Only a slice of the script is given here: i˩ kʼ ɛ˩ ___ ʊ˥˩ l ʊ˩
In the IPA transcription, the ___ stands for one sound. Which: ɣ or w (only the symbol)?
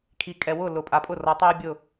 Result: w